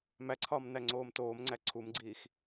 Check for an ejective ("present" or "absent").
absent